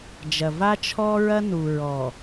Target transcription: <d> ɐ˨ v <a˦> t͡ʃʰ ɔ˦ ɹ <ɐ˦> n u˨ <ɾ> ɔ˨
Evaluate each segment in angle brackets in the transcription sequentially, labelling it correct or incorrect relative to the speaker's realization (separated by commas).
incorrect, correct, correct, incorrect